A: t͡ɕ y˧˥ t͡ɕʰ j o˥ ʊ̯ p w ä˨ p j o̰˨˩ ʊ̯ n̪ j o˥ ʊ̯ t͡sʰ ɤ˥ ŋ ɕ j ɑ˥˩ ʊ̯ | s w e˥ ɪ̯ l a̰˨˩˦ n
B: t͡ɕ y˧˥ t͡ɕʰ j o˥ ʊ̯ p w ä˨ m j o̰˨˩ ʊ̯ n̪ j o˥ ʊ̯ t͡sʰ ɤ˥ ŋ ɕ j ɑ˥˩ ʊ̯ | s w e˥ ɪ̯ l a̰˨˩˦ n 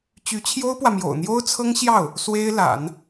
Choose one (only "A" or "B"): B